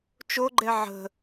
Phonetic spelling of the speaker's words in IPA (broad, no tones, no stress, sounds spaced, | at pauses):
t͡ʃ o ɡ͡ǃ ɛ ʕ ə̤